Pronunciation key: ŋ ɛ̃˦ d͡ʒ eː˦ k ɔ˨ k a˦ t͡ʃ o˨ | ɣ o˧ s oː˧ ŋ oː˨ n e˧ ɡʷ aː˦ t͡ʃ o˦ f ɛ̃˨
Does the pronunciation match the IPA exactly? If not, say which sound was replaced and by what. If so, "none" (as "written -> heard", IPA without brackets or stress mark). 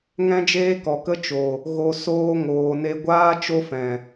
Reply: a˦ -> ə˦